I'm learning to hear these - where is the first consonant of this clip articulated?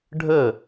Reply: retroflex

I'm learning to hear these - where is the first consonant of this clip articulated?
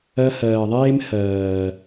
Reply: throat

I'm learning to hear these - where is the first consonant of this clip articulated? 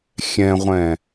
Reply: velum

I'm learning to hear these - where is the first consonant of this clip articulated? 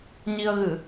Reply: palate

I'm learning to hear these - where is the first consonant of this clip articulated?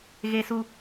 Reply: velum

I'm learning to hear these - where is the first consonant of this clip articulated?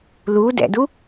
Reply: tongue tip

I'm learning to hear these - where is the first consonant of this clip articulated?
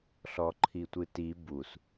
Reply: tongue tip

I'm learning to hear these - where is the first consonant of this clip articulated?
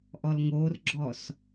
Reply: throat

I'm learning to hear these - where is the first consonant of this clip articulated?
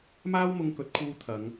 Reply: lips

